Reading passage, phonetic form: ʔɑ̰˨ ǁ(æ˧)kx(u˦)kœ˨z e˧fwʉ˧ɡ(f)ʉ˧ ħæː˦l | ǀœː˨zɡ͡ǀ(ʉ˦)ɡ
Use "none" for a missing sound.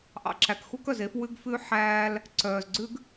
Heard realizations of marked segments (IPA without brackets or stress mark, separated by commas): æ˨, u˦, f, ʉ˦